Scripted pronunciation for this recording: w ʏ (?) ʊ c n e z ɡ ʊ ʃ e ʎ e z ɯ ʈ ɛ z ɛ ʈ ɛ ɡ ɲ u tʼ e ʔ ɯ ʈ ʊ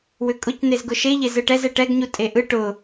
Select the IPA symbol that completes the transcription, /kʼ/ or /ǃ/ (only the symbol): kʼ